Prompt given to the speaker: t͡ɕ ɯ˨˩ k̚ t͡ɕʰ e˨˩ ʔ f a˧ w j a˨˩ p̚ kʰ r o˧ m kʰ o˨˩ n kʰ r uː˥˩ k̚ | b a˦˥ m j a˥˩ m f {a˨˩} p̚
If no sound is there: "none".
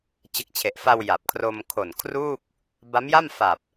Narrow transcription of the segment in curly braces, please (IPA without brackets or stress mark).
a˨˩